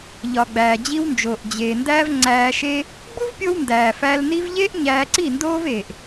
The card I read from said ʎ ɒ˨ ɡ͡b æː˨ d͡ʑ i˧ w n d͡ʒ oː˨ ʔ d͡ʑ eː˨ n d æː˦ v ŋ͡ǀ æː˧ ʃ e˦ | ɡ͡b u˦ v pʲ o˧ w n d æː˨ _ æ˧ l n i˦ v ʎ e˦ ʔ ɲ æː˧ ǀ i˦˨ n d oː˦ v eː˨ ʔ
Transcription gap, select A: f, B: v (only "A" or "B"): A